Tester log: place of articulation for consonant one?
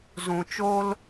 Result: alveolar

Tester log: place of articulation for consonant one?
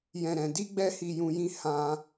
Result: palatal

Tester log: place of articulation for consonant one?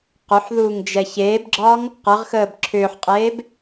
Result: uvular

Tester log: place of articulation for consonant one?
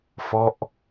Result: labial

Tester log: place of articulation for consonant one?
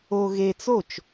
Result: velar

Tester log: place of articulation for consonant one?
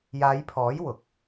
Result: palatal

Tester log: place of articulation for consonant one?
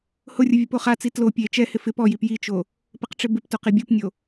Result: glottal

